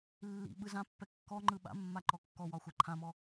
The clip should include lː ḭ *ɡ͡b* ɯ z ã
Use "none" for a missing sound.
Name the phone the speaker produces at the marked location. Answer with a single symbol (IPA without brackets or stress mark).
ɓ